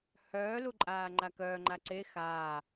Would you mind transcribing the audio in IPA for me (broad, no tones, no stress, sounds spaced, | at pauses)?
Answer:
h œː l u ǃʼ aː ŋ͡ǃ a k œː ŋ͡ǃ a ǀ e x aː